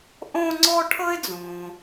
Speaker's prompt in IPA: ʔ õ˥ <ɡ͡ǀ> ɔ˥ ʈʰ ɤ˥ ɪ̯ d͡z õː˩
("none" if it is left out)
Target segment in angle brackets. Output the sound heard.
ŋ͡ǀ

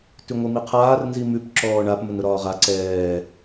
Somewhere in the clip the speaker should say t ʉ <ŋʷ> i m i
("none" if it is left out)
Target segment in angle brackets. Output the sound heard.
ŋʷ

